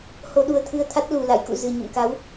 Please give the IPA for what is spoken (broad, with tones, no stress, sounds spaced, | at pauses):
h o˧ ɗ u˧ ə̯ t̪ʰ ɨ˧ ə̯ t̪ʰ a˦˥ t̚ l u˨˩ l a̰˧˨ j k ṵ˧˨ z ɨ˨˩ ɲ ə̰˧˨ m k a˨˦ w